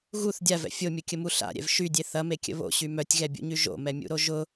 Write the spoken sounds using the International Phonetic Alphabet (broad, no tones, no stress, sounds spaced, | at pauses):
ɣ u θ dʲ a v ɛ̰ fʲ o mʲ ʊ kʲ ə m u ɬ a̰ ɾʲ ɛ̰ v ʃ y dʲ e θ ɐ m e kʲ ə̰ β o̰ ɕ y m œ tʲ ɣ ɛ bʲ ṵ ɲ y ʒ o̰ m ɛ mʲ ṵ ɾ o ʒ ʊ